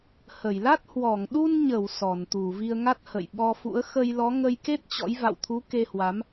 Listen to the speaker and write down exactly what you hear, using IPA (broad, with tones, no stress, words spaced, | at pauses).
hə˧˩jla˦˥t̚ hwɔ˧˩ŋɗu˧nɲə˧˩w sɔ˧˩nt̪u˧˩ vi˧ə̯ŋa˦˥t̚hə̰˧˨j ɓɔ˧fṵ˧˥ə̯ xə˧jlɔ˨˦ ŋə˧jke˦˥t̚ t͡ɕɔ̰˧˥j va̰˧˨wt̪ʰu˨˦ ke˧hwa˨˦m